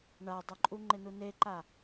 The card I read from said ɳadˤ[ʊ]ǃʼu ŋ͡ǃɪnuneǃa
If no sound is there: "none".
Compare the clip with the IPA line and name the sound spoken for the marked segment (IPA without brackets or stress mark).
ʊ